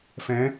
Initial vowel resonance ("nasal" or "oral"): nasal